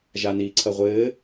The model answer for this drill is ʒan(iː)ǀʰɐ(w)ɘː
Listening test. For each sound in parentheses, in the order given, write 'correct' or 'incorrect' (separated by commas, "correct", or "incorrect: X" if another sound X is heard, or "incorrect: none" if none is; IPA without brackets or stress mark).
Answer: correct, incorrect: ʁʷ